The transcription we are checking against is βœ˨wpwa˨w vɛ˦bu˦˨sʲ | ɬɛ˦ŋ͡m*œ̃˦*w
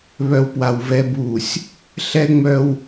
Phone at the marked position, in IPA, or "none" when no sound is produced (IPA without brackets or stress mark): œ˦